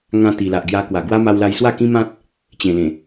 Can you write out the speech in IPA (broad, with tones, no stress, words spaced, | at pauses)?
ŋã˧ t̪i˨˩ la˨ʔɡja˧ kwa˨˩ɡwa˦ ma˦wla˦j swa˥˧kĩ˦mã˦t̚ | t͡ɕẽ˨˩lẽ˨˩